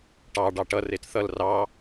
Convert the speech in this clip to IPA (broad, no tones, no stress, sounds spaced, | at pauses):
ʈ ɑ ɖ ɑ ʈ ʌ r e t θ ʌ l r ɑ